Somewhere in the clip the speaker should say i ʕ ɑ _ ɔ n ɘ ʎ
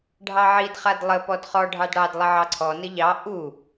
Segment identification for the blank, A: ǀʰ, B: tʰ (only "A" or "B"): A